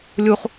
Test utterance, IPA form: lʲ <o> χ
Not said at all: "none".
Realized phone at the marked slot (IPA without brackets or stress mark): u